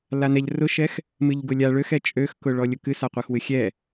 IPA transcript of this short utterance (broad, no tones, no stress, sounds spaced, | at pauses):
l a n ɛ ʎ r ʊ ʃ ɛ x | m ɨ ʎ ɡ ʊ lʲ a ɭ ø x ɛ t͡ʃʼ ø x k ʊ ɭ ɔ lʲ ʊ k ɨ s a qʷ ɛ x w ɨ xʲ ɛ